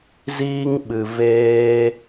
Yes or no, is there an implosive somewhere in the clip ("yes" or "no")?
yes